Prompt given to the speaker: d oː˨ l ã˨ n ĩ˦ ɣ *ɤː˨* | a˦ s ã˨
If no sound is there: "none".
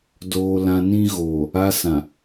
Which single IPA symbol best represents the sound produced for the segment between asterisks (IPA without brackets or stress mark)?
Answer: oː˨